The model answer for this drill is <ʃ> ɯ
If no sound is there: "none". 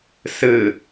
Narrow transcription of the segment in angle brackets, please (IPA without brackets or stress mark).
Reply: s